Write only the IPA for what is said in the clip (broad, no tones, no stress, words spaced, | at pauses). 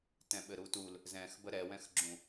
tɛ̃ɓɘɾutul | zɛ̃xbə ɾɛwɛ̃xɡ͡ǁũ